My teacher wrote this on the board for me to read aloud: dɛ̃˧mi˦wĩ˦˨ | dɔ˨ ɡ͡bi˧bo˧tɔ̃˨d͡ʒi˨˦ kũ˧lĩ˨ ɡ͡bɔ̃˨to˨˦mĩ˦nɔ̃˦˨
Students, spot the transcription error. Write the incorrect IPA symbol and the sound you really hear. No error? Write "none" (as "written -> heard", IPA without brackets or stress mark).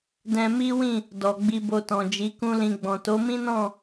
none